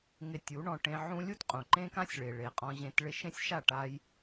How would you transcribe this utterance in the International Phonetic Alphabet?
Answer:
ŋ ɪ˧ tʲ u˨˦ ɳ ɔ̃˧ ʈ ẽ˧ ʕ ũ˦ lʲ u˦ t qʼ ũ˨ ǃ ẽ˦ k ã˦ sʲ ɭ e˨ ɭ e˨ qʼ ɔ̃˧ ʑ ẽ˧ t ɭ ɪ˧ ʃ ẽ˦ sʲ ʃ a˦˨ ʈ a˦ j

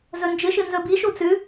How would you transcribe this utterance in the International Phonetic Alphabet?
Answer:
z ɵ n d͡ʒ ɨ ʃ ɨ n z ɵ b i ʃ u t͡s ʉ

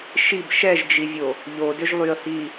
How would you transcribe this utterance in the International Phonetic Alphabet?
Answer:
ʃ i b ʃ ɛ ʒ d͡ʒ i vʲ o | ʎ o d ʏ ʒ lˠ y ə̯ h i

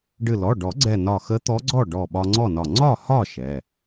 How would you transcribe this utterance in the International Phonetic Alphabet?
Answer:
ɖ ɨ˧˩ l ɔ˩˧˩ ɖ ɔ˨˩˦ ɡ͡ǀ ɛ˧˩ n ɒ˧˩ x ə˧˥ t̪ ɔ˧˥ ɡ͡ǀ ɔ˥˨ ɖ ɔ˧˩ ɓ ɒ˧ ŋ͡ǀ ɔ˥˨ n ɒ˧˩ ŋ͡ǀ ɒ˥˨ h ɒ˥˨ ʃ ɛ˩˧˩

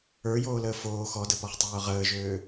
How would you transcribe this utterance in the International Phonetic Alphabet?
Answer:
ə˞ j oː l əː f oː x ɔ d ə p ɔ χ tˤ øː ʁ əː ʒ øː

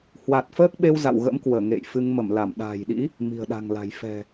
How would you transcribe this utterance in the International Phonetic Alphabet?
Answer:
h w a˨˩ t̚ f əː˦˥ k̚ ɓ e˧ w z a̰˧˨ w ɣ ə̰˧˥ m k w əː˧˩ ŋ ḛ˧˨ j f ɨ˧ ŋ m ə˧˩ m l a˧˩ m ɗ a̤ː˨˩ j ɗ ḭ˧˥ | m i̤˨˩ ə̯ ɗ a̤˨˩ ŋ l a̤˨˩ j f ɛ̤˨˩

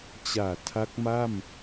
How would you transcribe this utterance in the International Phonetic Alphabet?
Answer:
t͡ɕ aː˨˩ tʰ a˦˥ k̚ m a˥˩ m

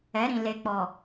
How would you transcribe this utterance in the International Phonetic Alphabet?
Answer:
ɛ˨˦ ɾ ĩ˨ l e˨ k͡p ɔ˨

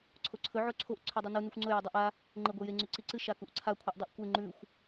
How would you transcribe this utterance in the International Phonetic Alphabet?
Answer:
ǀʰ o ǀʰ ɵ ʕ o ǀʰ o ʔ ǀʰ ʉ dˤ ɵ n u n ʉ xʷ ŋ͡ǀ ɵ j o dˤ ʉ ʔ a | ŋ͡ǃ e ɡʷ e j e ŋ͡ǀ ʉ ǀ i ǀ ɨ ʃ a k u ʔ ǀʰ a kʷʰ ɨ ʔ dˤ ʉ ʔ kʷ e ŋ͡ǃ ʉ xʷ

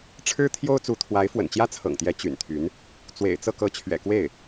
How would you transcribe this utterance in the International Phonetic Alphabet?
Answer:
ʈ͡ʂʰ ɻ̩˥ t̪ʰ j o˥ ʊ̯ t͡s u˧˥ t̪ʰ w a˧˥ ɪ̯ f w ə̰˨˩ n t͡ɕ j ä˥ t͡sʰ ɤ̰˨˩ ŋ t̪ j ɛ˧˥ t͡ɕ y̰˨˩ n t̪ʰ y˧˥ n | t͡s w ḛ˨˩ ɪ̯ t͡s ɤ˥˩ k ɤ˧˥ t͡ɕʰ ɥ ɛ̰˨˩ k w e˥˩ ɪ̯

